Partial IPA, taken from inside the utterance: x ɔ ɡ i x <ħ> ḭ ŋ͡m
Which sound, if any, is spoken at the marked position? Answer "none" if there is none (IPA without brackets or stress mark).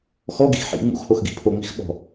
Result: ħ